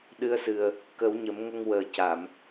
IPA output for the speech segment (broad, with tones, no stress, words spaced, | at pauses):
ɗɨ˧˥ə̯sɨ˨˩ə̯ | kə˨˩˦wɲə˨˩˦mŋə˧ŋ wəː˨˩ca˨˩˨m